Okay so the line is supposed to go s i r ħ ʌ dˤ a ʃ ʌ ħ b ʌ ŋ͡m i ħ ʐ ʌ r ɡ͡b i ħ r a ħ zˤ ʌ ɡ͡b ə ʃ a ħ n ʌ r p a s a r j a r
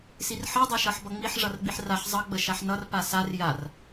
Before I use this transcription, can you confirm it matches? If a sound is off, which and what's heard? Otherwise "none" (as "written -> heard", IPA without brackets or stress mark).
none